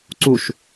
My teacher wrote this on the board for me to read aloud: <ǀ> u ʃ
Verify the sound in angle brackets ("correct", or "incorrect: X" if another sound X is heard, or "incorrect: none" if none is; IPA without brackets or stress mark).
correct